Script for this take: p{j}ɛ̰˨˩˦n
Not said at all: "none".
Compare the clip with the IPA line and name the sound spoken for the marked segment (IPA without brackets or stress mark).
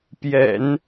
j